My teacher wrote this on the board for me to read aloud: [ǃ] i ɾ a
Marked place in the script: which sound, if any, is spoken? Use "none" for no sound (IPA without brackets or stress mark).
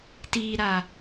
t